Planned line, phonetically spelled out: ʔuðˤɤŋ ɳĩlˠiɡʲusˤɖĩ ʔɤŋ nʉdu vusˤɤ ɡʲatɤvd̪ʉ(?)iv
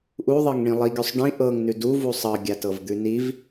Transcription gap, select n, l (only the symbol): n